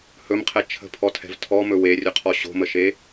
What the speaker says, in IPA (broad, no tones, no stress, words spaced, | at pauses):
hɵmqʰɛ t͡ʃʰə̤pʰɔtʰɛ̤v tʰɔmɵ werʲɵqʰɔ ɕo̤məʃe